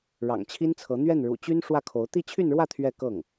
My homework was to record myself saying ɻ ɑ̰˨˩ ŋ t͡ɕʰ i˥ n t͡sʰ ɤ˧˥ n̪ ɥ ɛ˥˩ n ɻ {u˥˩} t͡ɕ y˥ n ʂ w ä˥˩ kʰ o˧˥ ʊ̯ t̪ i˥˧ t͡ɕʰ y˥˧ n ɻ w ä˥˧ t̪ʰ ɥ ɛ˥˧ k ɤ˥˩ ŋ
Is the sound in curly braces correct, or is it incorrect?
incorrect